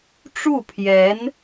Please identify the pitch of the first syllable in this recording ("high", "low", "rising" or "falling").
falling